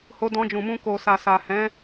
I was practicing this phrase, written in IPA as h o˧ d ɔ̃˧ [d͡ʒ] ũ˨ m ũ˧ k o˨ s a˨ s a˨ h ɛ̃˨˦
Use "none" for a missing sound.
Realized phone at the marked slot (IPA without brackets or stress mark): d͡ʒ